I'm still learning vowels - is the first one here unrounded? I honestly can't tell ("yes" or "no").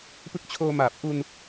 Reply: yes